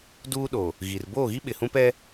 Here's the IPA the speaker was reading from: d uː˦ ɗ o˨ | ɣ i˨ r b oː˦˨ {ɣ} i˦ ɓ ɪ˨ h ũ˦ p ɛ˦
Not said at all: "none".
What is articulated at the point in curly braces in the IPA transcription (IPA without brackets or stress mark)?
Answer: ɣ